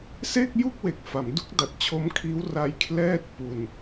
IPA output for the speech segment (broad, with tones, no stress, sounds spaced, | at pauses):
s e˥˩ k̚ j u˥˩ k̚ w e˨˩ k̚ f a˩˦ m d u˥˩ k̚ d a˨˩ t̚ t͡ɕʰ o˦˥ m kʰ iː˦˥ w r a˧ j kʰ l ɛː˥˩ t̚ p u˧ n